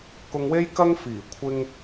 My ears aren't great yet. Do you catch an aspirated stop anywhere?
yes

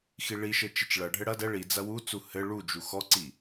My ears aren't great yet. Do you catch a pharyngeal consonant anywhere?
no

